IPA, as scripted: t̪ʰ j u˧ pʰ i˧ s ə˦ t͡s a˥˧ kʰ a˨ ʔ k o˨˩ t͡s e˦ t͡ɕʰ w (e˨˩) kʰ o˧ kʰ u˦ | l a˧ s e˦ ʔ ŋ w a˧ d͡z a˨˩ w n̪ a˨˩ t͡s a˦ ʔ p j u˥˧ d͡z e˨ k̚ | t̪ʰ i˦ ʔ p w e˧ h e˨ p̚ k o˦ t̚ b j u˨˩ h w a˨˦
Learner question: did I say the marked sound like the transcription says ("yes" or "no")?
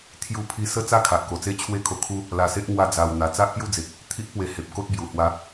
no